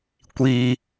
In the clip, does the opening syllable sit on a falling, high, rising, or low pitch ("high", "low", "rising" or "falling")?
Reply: high